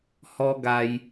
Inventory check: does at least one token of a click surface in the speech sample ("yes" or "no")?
no